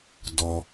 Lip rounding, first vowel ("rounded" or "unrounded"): rounded